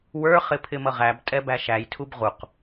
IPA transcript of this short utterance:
w ə˞ χ ɪ pʰ ɪ m ʌ ʁ æ b tʼ ɛ b æ ʃ æ j tʰ u b ʁ u q

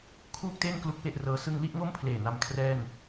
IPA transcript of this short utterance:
kʰ uː˥˩ k̚ t eː˥˩ n k l u˦˥ k̚ w e˥˩ ʔ r ɤː˧ s ɯ˧ ŋ l i˥˩ ʔ ŋ o˥˩ m pʰ l eː˨˩ n a˧ m kʰ r ɛː˥˩ n

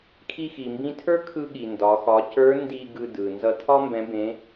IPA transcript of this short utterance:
kʰ i˧ x i˩ m b ĩ˧ tʰ ə˞˥ kʰ ɯ˧ ɠ i˩ n d ɒ˩˧ x ɒ˩˧ c ə˞˧˥ n d i˧ ɡ ɯ˧ d ɯ˩ n z ʌ˧ tʰ ɒ˥ m b ɛ̃˧˥ b ẽ˧˥

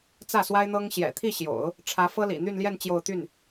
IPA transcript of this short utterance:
t͡s ä˥˩ s w a˥ ɪ̯ n̪ ɤ˥ ŋ ɕ j ɛ̰˨˩ t̪ʰ i˥˩ ɕ j o̰˨˩˦ ʊ̯ | ʈ͡ʂʰ ä˧˥ f ɤ˥ l ḭ˨˩ n̪ y˥˧ n l j ɛ˥˧ n t͡ɕ j o˥˧ ʊ̯ t̪ y˥˩ n

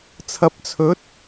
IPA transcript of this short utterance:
t͡sʰ ɐ˨˥ p̚ t͡sʰ ɵ˨˥ t̚

